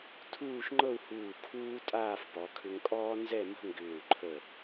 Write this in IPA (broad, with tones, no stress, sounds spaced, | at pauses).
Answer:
tʰ uː˥˧ ʃ ŋ͡ǃ ɤ˥˧ u̯ h uː˧˩ kʰ uː˥ tʼ aː˥˧ f p ɔ˩˧ kʰ ʏ˧ ŋ kʼ ɔː˥ n z ɛ˥˧ m ə̤˥ ŋ ɡ ʏː˧˩ u̯ ǃʰ ə˧˩